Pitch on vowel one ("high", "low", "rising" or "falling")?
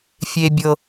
low